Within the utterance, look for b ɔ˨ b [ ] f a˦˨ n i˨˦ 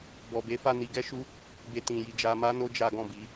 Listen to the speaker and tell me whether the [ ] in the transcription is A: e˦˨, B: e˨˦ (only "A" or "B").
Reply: B